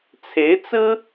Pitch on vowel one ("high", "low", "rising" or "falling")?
rising